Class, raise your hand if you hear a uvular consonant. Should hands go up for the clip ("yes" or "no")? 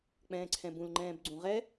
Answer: yes